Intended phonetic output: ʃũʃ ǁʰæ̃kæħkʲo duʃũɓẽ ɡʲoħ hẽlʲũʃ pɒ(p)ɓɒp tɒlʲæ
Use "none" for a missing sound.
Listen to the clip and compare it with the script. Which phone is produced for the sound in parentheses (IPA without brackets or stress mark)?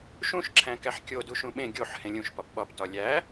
p